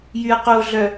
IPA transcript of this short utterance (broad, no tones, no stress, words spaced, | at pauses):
jyɐ̯qoɮœ